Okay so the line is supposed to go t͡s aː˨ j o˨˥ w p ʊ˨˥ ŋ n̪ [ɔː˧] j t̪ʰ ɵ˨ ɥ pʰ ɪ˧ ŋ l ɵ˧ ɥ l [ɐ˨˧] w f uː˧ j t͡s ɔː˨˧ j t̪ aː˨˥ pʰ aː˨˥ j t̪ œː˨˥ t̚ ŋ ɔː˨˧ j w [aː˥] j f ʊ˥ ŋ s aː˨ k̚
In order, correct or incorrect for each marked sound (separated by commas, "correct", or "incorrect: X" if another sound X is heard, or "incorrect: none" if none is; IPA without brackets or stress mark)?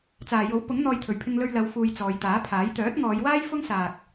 correct, correct, correct